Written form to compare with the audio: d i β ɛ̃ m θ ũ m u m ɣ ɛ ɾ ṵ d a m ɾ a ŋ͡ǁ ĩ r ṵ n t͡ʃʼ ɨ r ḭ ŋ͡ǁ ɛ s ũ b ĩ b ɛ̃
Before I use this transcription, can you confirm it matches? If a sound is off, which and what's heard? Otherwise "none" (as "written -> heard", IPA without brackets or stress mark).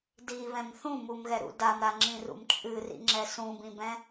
n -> m